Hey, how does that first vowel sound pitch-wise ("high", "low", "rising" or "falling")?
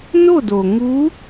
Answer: falling